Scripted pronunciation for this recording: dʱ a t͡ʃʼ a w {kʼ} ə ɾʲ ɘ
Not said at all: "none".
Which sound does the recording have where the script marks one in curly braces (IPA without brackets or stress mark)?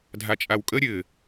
kʼ